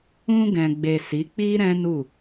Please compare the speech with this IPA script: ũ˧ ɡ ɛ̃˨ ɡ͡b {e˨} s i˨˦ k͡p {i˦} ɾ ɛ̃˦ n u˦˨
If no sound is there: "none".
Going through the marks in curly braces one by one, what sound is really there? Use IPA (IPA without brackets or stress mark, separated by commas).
e˨, i˦